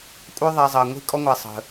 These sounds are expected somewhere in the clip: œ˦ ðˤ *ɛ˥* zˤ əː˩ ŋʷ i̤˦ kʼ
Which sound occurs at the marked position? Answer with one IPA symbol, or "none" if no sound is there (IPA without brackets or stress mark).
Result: ɛ˨